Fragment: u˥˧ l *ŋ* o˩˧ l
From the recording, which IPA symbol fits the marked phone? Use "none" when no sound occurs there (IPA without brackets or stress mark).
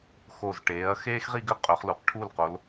q